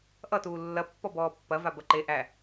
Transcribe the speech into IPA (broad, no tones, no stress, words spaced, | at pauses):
ʔʌtuː lːɐpːɔbɔː pːɐ vabɐǃe ʔæ